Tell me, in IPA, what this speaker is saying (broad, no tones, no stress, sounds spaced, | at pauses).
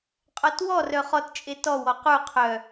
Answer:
qʼ ɔ t w ɔ r œ χ ɔ t t͡ʃʼ e t ɔ w ɔ q u qʰ œ